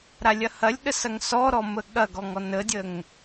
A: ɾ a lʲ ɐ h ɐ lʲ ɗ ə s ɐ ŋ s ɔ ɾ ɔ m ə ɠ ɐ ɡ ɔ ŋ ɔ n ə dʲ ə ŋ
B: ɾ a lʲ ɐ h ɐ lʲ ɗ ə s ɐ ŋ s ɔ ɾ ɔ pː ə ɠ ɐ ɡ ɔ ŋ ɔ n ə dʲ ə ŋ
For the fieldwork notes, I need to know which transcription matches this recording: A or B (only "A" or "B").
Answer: A